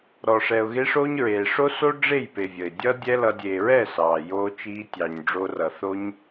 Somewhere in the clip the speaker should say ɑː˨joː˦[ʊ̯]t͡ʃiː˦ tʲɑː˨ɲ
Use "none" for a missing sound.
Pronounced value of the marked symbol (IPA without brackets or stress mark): none